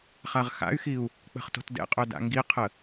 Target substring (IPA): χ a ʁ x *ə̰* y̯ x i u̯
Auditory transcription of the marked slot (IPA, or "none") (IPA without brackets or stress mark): a̰